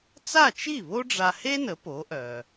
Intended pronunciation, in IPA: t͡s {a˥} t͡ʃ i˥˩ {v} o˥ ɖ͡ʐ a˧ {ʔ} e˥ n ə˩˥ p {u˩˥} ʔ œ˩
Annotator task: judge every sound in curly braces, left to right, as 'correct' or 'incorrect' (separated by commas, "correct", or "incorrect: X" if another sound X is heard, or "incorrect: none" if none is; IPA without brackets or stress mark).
incorrect: a˥˩, incorrect: β, incorrect: h, incorrect: o˩˥